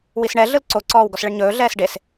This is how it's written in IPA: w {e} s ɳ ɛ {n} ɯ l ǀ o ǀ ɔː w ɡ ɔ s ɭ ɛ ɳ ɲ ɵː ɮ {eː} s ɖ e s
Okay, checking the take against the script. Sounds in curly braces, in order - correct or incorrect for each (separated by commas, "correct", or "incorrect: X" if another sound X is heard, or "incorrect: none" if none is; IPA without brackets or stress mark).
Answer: incorrect: i, incorrect: ɮ, incorrect: ɛː